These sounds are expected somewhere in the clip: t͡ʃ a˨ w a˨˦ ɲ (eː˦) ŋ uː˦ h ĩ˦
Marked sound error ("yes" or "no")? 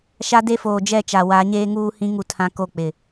no